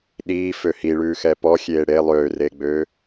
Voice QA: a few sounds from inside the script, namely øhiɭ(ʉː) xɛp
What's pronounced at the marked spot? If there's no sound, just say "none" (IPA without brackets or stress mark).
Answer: ʉː